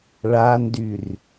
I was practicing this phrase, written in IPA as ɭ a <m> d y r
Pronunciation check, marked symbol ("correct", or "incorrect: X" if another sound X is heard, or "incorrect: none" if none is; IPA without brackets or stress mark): incorrect: n